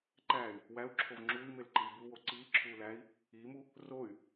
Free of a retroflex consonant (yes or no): yes